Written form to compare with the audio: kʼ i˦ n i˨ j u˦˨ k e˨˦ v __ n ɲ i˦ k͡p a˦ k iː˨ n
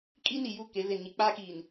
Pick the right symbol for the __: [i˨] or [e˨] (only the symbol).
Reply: e˨